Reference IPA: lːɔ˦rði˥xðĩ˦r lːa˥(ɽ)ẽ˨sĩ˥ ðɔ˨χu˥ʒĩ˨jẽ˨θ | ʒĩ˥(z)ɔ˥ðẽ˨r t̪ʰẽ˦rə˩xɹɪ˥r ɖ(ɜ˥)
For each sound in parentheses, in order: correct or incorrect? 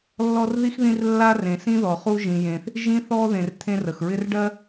incorrect: r, incorrect: θ, correct

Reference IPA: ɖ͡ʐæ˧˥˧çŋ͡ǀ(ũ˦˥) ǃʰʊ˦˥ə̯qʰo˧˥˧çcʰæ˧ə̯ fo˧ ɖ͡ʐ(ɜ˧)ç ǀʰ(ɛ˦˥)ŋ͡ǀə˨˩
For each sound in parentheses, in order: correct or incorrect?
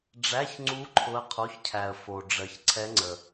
incorrect: u˦˥, correct, correct

